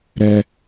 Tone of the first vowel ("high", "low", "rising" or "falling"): high